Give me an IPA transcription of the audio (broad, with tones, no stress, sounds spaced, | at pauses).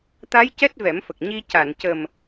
t̪ a˧˥ j c ɛ˦˥ t̚ v ɛ˨˩˦ m f ə˨˩ k̚ ɲ i˧ c a˨˩˨ n c ə˨˩ m